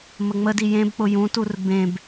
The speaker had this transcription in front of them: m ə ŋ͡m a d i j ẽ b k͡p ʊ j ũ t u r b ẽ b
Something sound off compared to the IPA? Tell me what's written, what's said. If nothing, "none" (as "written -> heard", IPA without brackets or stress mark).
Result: a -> ə